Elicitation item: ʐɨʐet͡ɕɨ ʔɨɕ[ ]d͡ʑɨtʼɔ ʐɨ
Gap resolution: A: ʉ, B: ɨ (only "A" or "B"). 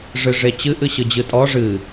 B